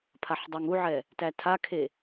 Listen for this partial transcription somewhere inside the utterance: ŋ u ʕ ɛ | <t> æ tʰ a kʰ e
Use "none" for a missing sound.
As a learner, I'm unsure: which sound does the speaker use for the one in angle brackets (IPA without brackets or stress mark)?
t